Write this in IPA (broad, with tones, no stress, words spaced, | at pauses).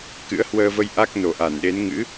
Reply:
kɨ̰˧˥ə̯hwəː˧və˧j ʔa˦˥k̚ no˨˩ʔa˧˩nɗe˨˦n ŋɨ̰˧˥